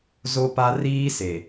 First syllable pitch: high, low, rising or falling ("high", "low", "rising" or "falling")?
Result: high